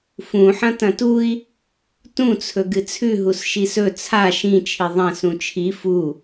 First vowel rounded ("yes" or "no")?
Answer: yes